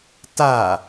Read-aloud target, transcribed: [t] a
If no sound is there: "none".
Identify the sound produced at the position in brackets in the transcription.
t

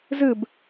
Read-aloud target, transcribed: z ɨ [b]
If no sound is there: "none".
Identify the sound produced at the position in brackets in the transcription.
b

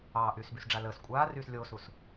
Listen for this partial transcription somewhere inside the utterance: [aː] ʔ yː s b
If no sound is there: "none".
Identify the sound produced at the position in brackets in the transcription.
ɑː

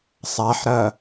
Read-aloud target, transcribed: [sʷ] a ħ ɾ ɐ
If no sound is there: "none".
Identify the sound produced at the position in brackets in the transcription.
sˤ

